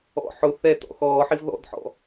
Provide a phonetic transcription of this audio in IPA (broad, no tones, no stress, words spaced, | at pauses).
ɔ̰ ħʊ θɛtɔ̰ xɔːħiv ðɔ̰dħɔ̰